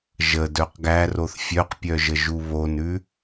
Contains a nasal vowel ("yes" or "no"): no